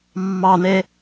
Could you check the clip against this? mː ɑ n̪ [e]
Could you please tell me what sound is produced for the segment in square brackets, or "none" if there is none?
e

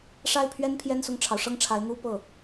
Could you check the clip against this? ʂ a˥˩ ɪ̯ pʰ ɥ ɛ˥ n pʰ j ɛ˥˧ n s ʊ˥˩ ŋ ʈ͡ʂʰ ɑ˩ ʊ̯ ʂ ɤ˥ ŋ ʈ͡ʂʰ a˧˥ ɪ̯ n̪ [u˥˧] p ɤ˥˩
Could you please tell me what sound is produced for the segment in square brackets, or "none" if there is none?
u˧˥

